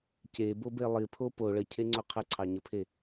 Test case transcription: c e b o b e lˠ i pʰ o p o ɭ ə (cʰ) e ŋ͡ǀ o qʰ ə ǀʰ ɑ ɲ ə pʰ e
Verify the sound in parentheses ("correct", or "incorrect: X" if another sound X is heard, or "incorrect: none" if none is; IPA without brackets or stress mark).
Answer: correct